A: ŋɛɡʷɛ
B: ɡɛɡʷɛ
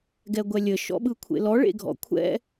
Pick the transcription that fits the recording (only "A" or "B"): B